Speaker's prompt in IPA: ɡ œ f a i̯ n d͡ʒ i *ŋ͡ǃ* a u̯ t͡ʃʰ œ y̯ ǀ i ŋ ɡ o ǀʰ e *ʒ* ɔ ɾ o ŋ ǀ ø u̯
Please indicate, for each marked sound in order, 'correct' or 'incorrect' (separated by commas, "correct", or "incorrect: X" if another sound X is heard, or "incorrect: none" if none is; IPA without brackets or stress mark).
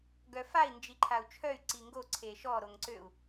incorrect: ǃʰ, incorrect: ʃ